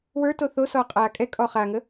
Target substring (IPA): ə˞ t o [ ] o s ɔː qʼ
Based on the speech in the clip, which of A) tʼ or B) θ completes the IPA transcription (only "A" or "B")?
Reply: B